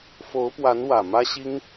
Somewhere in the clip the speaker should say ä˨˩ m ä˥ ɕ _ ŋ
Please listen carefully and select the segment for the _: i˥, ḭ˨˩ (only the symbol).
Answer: i˥